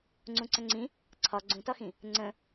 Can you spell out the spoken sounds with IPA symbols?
ŋ͡ǀ ũ ǀ ə̃ ŋ͡ǀ ĩ | ǀʰ ɒ ɡ͡ǀ ũ t ɒ x ĩ | ŋ͡ǀ ə̃

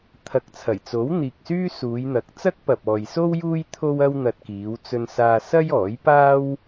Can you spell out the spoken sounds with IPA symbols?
t̪ʰ ɐ˨ k̚ t͡sʰ ɐ˨˩ j t͡s o˨˥ w n̪ iː˨ k̚ s yː˥ s uː˨˧ j n̪ ɐ˨˥ k̚ t͡s ɐ˥ k̚ p ɐ˨ p̚ ɔː˨ j s o˥ w j uː˥ j t̪ʰ o˥ w ɐ˥ w n̪ ɐ˧ t̚ k iː˨˧ w t͡s ɵ˧ n s aː˧ s ɐ˥ j ɔː˨˥ j p aː˥ w

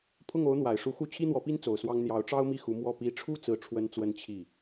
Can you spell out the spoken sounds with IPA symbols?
pʰ ʊ˥˩ ŋ o˧˥ ʊ̯ n̪ w a˨˩ ɪ̯ ʂ u˧˥ x u˥˩ t͡ɕʰ i˥ n̪ w ɔ˧˥ p i˥ n t͡s o˨˩ ʊ̯ s w ɑ˥ ŋ n̪ j ɑ˧˥ ʊ̯ ʈ͡ʂ ɑ˥ ʊ̯ m i˥˩ x u˧˥ m w ɔ˥˩ p i˧˥ ʈ͡ʂʰ u˥˧ t͡s ɹ̩˥˩ ʈ͡ʂʰ w ə˥ n t͡s w ə˥ n t͡ɕʰ i˥˩

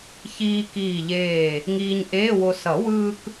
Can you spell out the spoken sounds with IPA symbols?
ç iː˧ k iː˧˩ ʎ eː˧˩ | ŋ iː˧ ɲ ʔ eː˧˥˧ w o˧ s ʌ˨˩˦ w ɯː˧ k

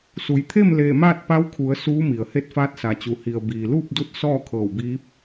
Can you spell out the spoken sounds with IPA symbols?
s u˩ j t̪ʰ e˥˨ m l eː˧˩ m aː˥˨ t̚ p a˧˥ w kʰ u˩˧ ə̯ s uː˧˥ m i˩ ə̯ h e˧˥ t̚ f aː˧˥ t̚ s a˩ t͡ɕ u˩ h i˩ ə̯ b iː˩ l uː˥˨ p̚ d u˧˥ t̚ s ɔː˥˨ kʰ ɤː˧˩ w b iː˧˥ p̚

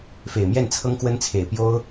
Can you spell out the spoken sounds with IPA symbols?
f e˨˩ ɪ̯ m j ɛ˥˩ n t͡sʰ ɤ˥ ŋ k w ə˥ n t͡sʰ e˨˩ ɪ̯ p j o˥ ʊ̯

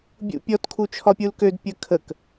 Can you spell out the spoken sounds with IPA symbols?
bʲ ṵ pʲ ɔ t kʰ u t͡ʃʰ ɒ pʲ u l k ø d pʲ ə kʰ ə k

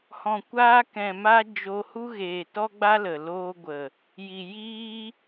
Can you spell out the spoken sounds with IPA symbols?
h ɔ̃˨ kʷ aː˧ k ɛ̃˨ m a˧ d͡ʒ o˧ h u˦ ɣ eː˨ t ɔ˦ ɡ͡b a˦ l ə˨ l oː˧ ɡʷ ə˨ | j i˨ j iː˦

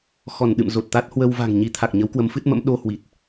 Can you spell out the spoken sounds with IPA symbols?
x ɔ˧˩ n ɗ ɨ̰˧˨ m z o˨˩ t̚ t̪ a˦˥ t̚ h w ə˧ w v a̤˨˩ ŋ ɲ i˨˦ t̪ʰ a˨˩ k̚ ɲ ə˨˦ w k w ə˨˦ m f ɨ˦˥ t̚ m ə̰˧˥ m ɗ o˧ h w i˨˩ t̚

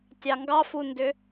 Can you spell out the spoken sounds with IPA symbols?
tʲ ɑ ŋ ɡ ɑ f u n d ʏ

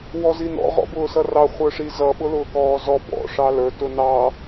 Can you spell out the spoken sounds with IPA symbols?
w ɔ z i n ɔ̰ ʁ ɔ̰ b ʊː s ʌ r ɑ χʷ ə˞ ʂ i z ʌ ɓ ʊ l ʊː k ɔː z ɔ b ɔ̰ ʂ ɑ l ə˞ t ʊ n ɑ

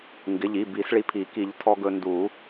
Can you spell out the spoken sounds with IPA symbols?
ŋ ɡ ɪ˩˧˩ ʎ i˩˧˩ b i˨˩˦ s ɭ i˧ pʰ i˨˩˦ k i˨˩˦ ʎ tʰ ɔ˧ ɡ ɵ˧ n d u˨˩˦

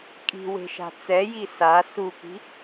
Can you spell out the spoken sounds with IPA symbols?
kʼ i̤ w e̤ ʃ a̤ t͡s ɛ j i s a s u k i̤

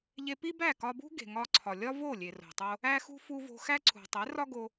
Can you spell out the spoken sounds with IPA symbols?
ʎ e˧ p i˦ b æ˦˨ k ɒ˧ b ṳ˦ ɡ e̤˨ ŋ ɒ˧ ǀʰ ɒ˨ lʲ ɒ˦ v o˦˨ lʲ e˨ r o̤˨ tˤ o˧ | æ˧ x ṳ˧ f u˧ v o̤˧ x æ˦ ǀʰ ṳ˨ tˤ e˨˦ r ɒ˦ ɡ o˧

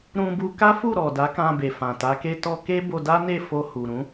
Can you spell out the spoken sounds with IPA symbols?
ɾ ũ˧ b u˧ k a˦ f u˦˨ ɾ ɔ˨ d a˨˦ k ã˧ b e˨ f ã˨ t a˨˦ k e˦ t ɔ˧ k e˦ b o˧ d a˦ n e˦˨ f o˧ h u˨ ɾ ũ˨˦

